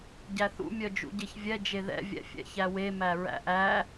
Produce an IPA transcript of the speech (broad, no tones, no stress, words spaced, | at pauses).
ɟæθṵ mʲœd͡ʒṵɟeçvʲɛ d͡ʒeðɛ̰ vʲɛ̰fʲɛ̰çæwe mæɹæ̰ʔæ